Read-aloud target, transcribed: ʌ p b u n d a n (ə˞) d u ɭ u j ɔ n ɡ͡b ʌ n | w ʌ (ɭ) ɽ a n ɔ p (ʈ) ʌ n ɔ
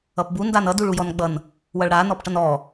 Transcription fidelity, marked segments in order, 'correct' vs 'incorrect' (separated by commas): incorrect, correct, correct